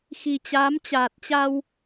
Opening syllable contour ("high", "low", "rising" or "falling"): low